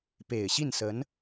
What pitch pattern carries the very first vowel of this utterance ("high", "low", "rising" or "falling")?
low